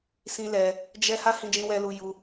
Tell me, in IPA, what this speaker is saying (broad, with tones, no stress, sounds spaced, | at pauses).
s ĩ˦ l ɛ˧ | d͡ʒ ɛ˦ h a˦ h ĩ˧ d͡ʒ ĩ˧ w ɛ˧ l u˧ j u˧